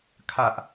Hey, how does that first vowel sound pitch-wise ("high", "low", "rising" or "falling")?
high